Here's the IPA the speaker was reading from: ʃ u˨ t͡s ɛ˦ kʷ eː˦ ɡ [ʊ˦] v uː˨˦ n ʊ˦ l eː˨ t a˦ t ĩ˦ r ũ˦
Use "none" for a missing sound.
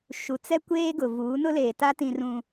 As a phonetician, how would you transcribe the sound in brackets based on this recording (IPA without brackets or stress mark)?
ʊ˨